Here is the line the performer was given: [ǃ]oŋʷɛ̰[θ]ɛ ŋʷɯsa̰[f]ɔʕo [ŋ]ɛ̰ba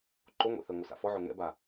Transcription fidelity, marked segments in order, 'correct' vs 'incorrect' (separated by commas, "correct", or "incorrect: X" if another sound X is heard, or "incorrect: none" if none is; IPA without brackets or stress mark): correct, correct, correct, correct